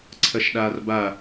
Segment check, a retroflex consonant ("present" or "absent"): absent